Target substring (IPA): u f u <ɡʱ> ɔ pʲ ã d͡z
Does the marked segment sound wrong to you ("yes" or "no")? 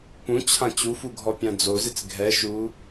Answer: no